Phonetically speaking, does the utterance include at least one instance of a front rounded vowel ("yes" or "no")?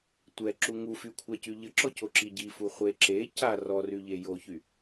yes